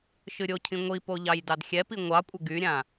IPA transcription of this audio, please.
ʃ ɨ ɾʲ o cʰ ĩ ŋʷ i p o ʎ ɑ j d ɑ d xʲ ɛ p i ŋʷ ɑ kʷʼ ə ɡ y ɾʲ ã

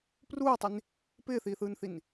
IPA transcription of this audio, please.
p r uː i̯ tˤ i n | p ɪː θ iː θ ɯː n θ i n

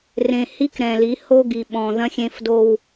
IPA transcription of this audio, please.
r ẽ˨ h i˦ k ɾ ɛ̃˨ l i˨˦ h o˦ ɡ i˨ ɓ ɔ̃˨ ð ɐ̃˦ xʲ ẽ˦ f d o˦ w

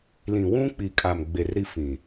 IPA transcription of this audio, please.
l ĩ˨ w ũ˦ k͡p i˨ kʼ a˨ m ɡ͡b e˨ r ɾ i˦ f ĩ˨

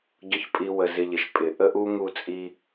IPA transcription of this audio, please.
ɟ ʊ˦ ç pʼ i˧ w ə˨ z ɪ˧ ʎ ɪ˨ ʃ pʼ ɪ˨ ʔ ə˦ ʔ u˦ ŋ u˧ t͡sʼ i˧

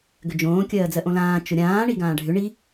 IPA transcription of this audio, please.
ɡ ʏ d͡ʒ õː kʲ ɜː d͡z ɜ ʔ õ l ãː t͡ʃ ʊ ɾʲ ãː ɳ i ɡ ãː ɖʱ ʏ ɳ i

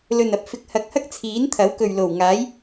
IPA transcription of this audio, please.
l ɵ˨ n ɐ˨ p̚ f ɪ˨˥ k̚ h ɐ˨˥ k̚ h ɐ˥ k̚ t͡sʰ iː˨˥ n t̪ʰ ɐ˨˥ w k ɵ˨ ɥ l o˨˩ w ŋ aː˨˥ j

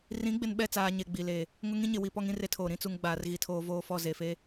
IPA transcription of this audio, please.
r ĩ˨˦ ɡ͡b ɪ˨ n ɓ ɛ˦˨ t͡s aː˨ ɲ e˨ ɡ͡b i˨ l e˨ | ŋ ʊ˦ ŋ ĩ˦ ɲ ɪ˨ w i˨ p ɔ˦ ŋ ĩ˦ r e˦ tʰ oː˨ ɾ ĩ˦ t͡s u˨ ŋ ɡ͡b aː˨ r ɣ i˨ tʰ oː˦ v oː˦ f ɔ˦˨ z e˨ f e˦

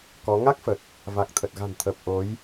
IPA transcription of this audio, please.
k ɔ˨˦ ŋ a˦˥ k̚ f ə˨˩ t̚ | v a˨˩ k̚ t̪ʰ ə˨˩ t̚ ɣ a̤˨˩ n t̪ʰ əː˨˩ p̚ ʔ o˨˦ j

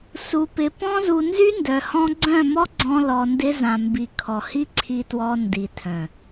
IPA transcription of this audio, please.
s u˧ p ɪ˧ p ɔ̃˦ z u˧ n z y˦ n d œ˧ h ɔ̃˦ ɡ͡ǀ œ̃˦˨ m ɔ˦ ɡ͡ǀ ɔ̃˦ l ɔ˧ n d ɪ˦ z ã˨ m b i˨ kʰ ɔ˨ h i˦ ǀʰ i˧ t w ɔ˧ n d i˨ tʰ œ̃˨

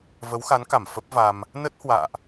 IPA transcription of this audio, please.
v ə˨˦ w x a˨˦ n k a˧˩ m f ə˦˥ p̚ v a˧ m | n ə˦˥ t̚ h w a̰ː˧˨ ʔ

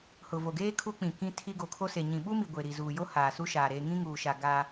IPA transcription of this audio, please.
h ʊ˨ v o˨ ɡ eː˦ kʰ u˦ k͡p ĩ˨ k ĩ˦ tʰ i˦ ɡ o˨ kʰ o˦ s e˨ ɲ ĩ˨ ɓ u˦ m i˨ ɡʷ e˨ ɾ i˨ z uː˨ j o˦ h aː˨ s u˦ ʃ aː˨ ɾ eː˨ ŋ ĩ˦ ŋ uː˨ ʃ a˨ ɡ a˦

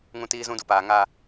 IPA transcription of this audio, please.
ŋ ũ˦ t iː˦ z ũ˦ d u˨ p aː˨ ŋ a˦

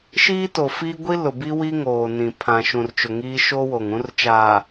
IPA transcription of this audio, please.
ʃ iː˦ t o˨ f i˦ ɡʷ i˦ l ʊ˨ b i˦ w i˦ ŋ oː˨ n ĩ˨ pʰ ã˨ ʃ ũ˨ r t͡ʃ ʊ˨ ŋ iː˦ ʃ o˦ w o˨ ŋ ũ˦ r t͡ʃ aː˨

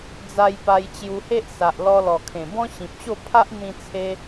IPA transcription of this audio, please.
d͡z a˧ j p a˧ j t͡ɕ j u˧ h e˦ ʔ s a˨ ʔ l ɔ˧ l ɔ˨˩ kʰ ẽ˨˩ b ɔ̃˦ ɕ ĩ˨ p̚ ɕ o˥˧ pʰ a˦ ʔ n̪ ĩ˧ t͡sʰ e˧

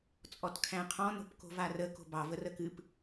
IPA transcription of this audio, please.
t͡sʼ ɔ t kʰ æ̃ qʰ ɔ̃ n o̤ p k o̤ v a r ə k o̤ b ɑ v ə r ə k ɨ p

